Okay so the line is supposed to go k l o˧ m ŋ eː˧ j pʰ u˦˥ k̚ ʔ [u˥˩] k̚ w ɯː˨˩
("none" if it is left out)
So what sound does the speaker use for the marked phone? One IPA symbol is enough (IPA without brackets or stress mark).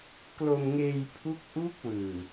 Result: u˦˥